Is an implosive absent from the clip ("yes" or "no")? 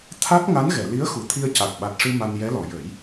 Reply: no